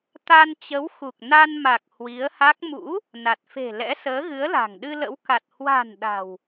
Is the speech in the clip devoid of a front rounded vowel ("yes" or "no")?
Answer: yes